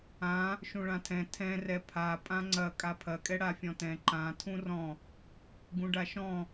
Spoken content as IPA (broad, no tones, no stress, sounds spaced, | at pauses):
ã | ʃ ũ ɭ ã tʰ ɛ̃ tʰ ɛ̃ r ɛ pʰ a pʼ ã ŋ͡ǀ ɐ kʼ a pʰ ɐ kʼ ɛ ɽ a fʲ ɔ̃ t ɛ̃ ǃ ã tʰ ũ r ɔ̃ | ɡ ũ ɖ a ʃ ɔ̃